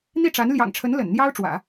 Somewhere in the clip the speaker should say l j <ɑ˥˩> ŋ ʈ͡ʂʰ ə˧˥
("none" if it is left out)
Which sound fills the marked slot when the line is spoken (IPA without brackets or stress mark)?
ɑ̰˨˩